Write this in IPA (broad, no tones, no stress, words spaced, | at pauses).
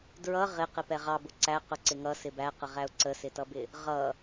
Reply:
dɹʌ ʁɪ qɪpɛʁɑ bʊǀæ qʊǀɪŋʌ sɪbæqəʁæʊ̯ ǀəsɪtʌbɪ | ʁʌ